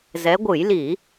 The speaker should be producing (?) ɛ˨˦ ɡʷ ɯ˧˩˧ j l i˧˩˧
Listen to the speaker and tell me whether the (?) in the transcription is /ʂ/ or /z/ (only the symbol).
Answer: z